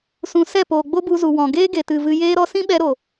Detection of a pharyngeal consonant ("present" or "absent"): absent